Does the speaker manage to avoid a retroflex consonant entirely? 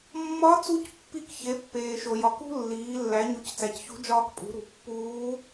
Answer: yes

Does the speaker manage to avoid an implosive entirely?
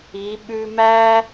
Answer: no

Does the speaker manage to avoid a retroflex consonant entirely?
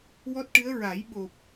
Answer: no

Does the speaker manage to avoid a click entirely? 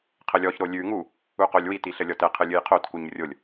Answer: yes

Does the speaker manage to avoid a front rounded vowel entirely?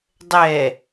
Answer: yes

